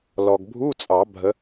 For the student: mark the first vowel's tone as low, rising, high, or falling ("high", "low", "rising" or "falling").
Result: low